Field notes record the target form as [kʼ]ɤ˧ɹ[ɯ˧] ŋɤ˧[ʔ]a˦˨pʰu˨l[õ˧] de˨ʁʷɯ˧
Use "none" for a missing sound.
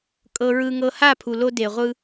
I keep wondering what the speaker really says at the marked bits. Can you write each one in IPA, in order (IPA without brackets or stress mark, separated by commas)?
kʼ, ɯ˧, h, o˧